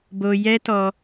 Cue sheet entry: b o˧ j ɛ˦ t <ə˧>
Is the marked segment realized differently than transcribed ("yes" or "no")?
yes